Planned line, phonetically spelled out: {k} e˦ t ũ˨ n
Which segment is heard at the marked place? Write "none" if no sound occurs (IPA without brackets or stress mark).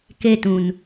k